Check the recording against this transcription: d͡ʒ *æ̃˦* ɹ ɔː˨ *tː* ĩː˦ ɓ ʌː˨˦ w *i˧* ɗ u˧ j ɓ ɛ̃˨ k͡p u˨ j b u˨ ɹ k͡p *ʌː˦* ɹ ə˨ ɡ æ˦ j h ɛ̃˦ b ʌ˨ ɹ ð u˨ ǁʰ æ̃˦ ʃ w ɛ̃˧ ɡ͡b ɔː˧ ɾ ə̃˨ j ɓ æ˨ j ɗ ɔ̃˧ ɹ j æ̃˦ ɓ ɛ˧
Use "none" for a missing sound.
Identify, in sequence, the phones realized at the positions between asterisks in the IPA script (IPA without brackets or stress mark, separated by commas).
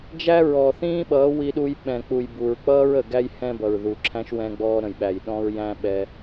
æ˦, θ, i˧, ʌː˦